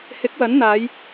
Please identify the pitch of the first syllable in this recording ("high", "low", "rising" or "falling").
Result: rising